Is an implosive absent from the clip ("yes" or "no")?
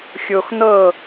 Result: yes